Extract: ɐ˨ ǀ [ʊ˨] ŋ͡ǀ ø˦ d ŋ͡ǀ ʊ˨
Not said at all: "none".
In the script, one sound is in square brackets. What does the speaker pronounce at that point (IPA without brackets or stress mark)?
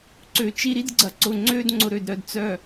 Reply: ʊ˨